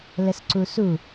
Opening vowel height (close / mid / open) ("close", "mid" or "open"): mid